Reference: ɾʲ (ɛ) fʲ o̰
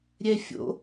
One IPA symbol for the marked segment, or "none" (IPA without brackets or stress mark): ɛ